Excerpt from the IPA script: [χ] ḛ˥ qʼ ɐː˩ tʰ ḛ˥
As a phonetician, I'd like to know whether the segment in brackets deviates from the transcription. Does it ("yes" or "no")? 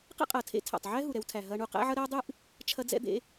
yes